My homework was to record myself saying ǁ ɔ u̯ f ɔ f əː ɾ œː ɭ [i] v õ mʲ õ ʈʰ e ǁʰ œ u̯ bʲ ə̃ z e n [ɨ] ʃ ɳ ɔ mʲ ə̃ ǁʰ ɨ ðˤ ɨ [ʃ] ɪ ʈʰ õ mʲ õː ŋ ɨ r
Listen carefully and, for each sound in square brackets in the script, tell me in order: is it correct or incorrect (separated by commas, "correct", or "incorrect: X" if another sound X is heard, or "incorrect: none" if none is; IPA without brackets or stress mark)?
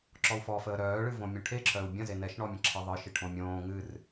incorrect: ɨ, incorrect: ɛ, correct